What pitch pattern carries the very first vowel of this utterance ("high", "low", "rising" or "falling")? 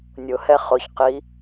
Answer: low